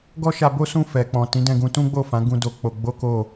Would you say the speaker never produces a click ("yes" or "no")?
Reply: yes